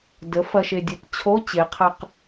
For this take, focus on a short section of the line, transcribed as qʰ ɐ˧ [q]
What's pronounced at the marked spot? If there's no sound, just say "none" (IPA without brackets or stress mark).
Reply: q